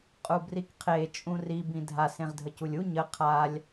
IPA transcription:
qʼ u b r i k qʰ e t͡ʃʼ ũ r i b ĩ dʱ a s ẽ ʁ dʱ ə c u lʲ u ɲ ə qʰ a lʲ

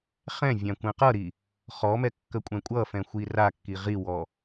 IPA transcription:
χ ɛ̃ vʲ ã kʷ ɛ̃ q ʌ ɾ i | χ ɔ m ɛ kː ə kʷʼ ɛ̃ kʷʼ ʌ f ɛ̃ xʷ i r a kː i ʁ i w ɔ

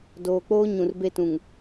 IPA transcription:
d oː˨ k͡p oː˦ ɲ ũ˨ r b e˦ t ũ˨ ŋ

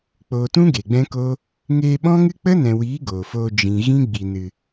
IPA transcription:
k͡p oː˨ t ũ˦ ɡ e˨ ɡ͡b ɛ̃˦ k o˦ | ŋ eː˧ ɓ ɔ̃˦ ŋ ɨ˦ k͡p ə˦ n ɛ̃˨ w iː˨˦ ɡ oː˨ f oː˧ d͡ʒ ĩ˨ ɣ ĩ˦ ɡ͡b i˨ n ɨ˨

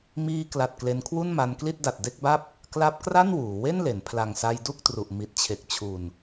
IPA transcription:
m iː˧ k l a˨˩ t̚ k l e˧ n kʰ w u˥˩ n m a˧ n k l i˥˩ t̚ d a˨˩ t̚ d e˥˩ k̚ b a˥˩ p̚ | k l a˦˥ p̚ k r a˥˩ n w uː˩˦ w e˥˩ n l e˩˦ n pʰ l a˨˩ ŋ s a˧ j d u˥˩ k̚ t r u˨˩ ʔ m i˨˩ t̚ t͡ɕʰ e˨˩ k̚ t͡ɕʰ u˨˩ n

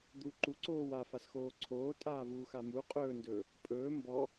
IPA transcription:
d̪ u ǃ u ǀ oː w a f a s x oː ǀʰ oː tʼ aː v uː x a m u qʼ ɵː n d ɵː | pʼ ɵː m b ɔ

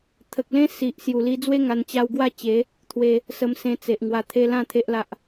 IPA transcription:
t̪ʰ ə˨ k̚ l ẽ˦ s i˨ ʔ s j u˨˩ l i˧ d͡z w e˦ ŋ a˧ n t͡ɕ a˧ w ɡ w a˥˧ t͡ɕ e˨˦ | t̪ʰ w e˦ | s ə˧ m s ẽ˧ t͡s e˨ ʔ ŋ w a˨˩ t̪ʰ e˧ l ã˥˧ t̪ʰ e˦ ʔ l a˦ ʔ

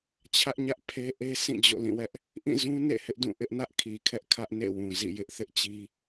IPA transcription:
t͡ɕʰ ä˦ ʔ ɲ ä˦ ʔ pʰ e˦ ʔ e˦ sʰ ĩ˦˨ d͡ʑ o̰˦˨ l ĩ˦˨ w ɛ˦ ʔ | ʔ ĩ˦˨ z ũ˦ n ḛ˦˨ h ɪ˦ ʔ d ũ˦˨ ʔ ɪ˦ ʔ n ä˦ ʔ kʰ i˨ kʰ ɛ˦ ʔ kʰ ä˦ ʔ n ḛ˦˨ w ũ˨ z ḭ˦˨ j ɪ˦ ʔ θ ɪ˦ ʔ t͡ɕ i˦

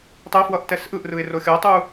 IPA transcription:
tˤ ɛ f w ʌ ʔ t ɛ s ʔ ɯ ʔ r ɯ ɪ̯ r o xʲ ʌ tˤ u

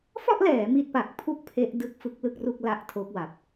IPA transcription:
f ɔ˥˩ ʔ l ɛː˩˦ m i˦˥ t̚ p a˨˩ k̚ pʰ u˥˩ k̚ pʰ e˦˥ ʔ d ɯ˥˩ k̚ f ɯ˦˥ k̚ l ɯ˥˩ k̚ r u˥˩ k̚ l a˦˥ ʔ tʰ o˦˥ k̚ w a˨˩ p̚

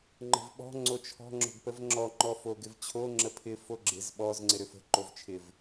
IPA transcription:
ŋ͡ǃ ə̤ v ɓ ɔ̤ ŋ͡ǀ o t͡ʃʰ ɔ̤ ŋ͡ǁ o̤ ɡ p ə v ŋ͡ǁ ɔ ŋ͡ǃ ɔ f o ɡ ɪ v t͡ɕʰ o ŋ͡ǁ ə pʰ ɪ f o ɡ͡ǁ ɪ z ɓ ɔ z ŋ͡ǀ ɪ ɾ ʏ f ə̤ ǃ o v t͡ʃʰ ɪ v

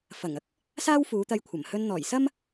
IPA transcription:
f ɐ˨˩ ŋ ɐ˥ k̚ | s aː˥ w f uː˨˧ t̪ ɐ˧ j kʷʰ ɐ˨˩ m h ɵ˧ n n̪ ɔː˨˩ j s ɐ˥ m

